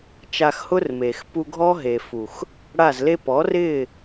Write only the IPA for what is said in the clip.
t͡ʃa˧xhʊ˦rmeː˨x pu˧ɡʱɔ˦ɦe˨fu˨x | ɽa˦˨zle˦ pɔ˨˦rɪː˦˨

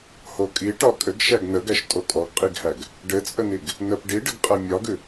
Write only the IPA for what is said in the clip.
hokʼi ʈɒkʼɘɡ ʃæɡnəɡæʃ tʼokʼɔɡqʼiɡhæɡ | ɖɘt͡sʼəniɡ | nəp ɖiɖəɡqʼæ mʲɒɡʉ

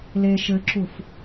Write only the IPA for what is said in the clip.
le ʃɘǁuf

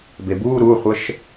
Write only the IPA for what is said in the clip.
bebuː ɾuχʷəʃ

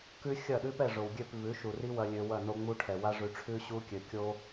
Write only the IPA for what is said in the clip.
kʉ˦xʲɐ˦˨ɗʉ˦pɛ˦˨ ʐo˨wɡʲø˦˨p vʉ˨˦ʃu˨ri˦wɐ˧ lʲø˧wɐ˦˨no˦ŋ͡mu˦ ʈʰɛ˨wa˦ʐʉ˧ ʈ͡ʂʰʉ˦ɕu˦kʲø˨ kʲo˦

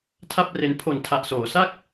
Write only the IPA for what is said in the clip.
tʰa˥˩p̚re˧n pʰo˨˩ntʰa˨˩ʔsoː˩˦sa˥˩k̚

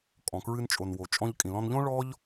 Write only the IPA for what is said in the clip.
kʼɔ̃˩kɹɨ˧nt͡ʃʼo˩n wo˩t͡ʃʼɔ̃˧ʎkʼĩ˩ lɔ̃˧nʎõ˥ ɭɔ˥ʎ

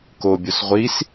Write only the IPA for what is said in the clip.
kobʲos ʁʷis

